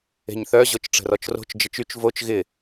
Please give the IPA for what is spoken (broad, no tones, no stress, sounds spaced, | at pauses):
e̤ ɲ θ œ ʑ o t͡ʃ ʈ͡ʂ ə̤ r ɔ t͡ʃ r o̤ t͡ʃ d͡ʒ ə t͡ʃ y t͡ʃ v o t͡ʃ ɣ ɪ